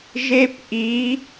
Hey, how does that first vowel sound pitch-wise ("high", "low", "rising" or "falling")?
high